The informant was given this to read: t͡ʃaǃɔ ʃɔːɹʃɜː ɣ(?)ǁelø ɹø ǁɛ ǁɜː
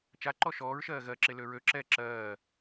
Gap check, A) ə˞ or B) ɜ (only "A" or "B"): B